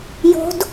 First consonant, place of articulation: palatal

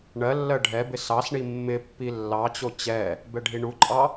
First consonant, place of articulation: retroflex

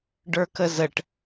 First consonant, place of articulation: retroflex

